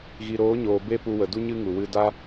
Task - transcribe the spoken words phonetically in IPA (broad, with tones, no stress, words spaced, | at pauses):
ɣi˨ɾoː˨˦ɲoː˨ be˦pu˧wə˨ du˦ɲɨ˦ŋu˨ wɨ˧da˦